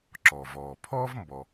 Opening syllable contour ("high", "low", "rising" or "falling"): low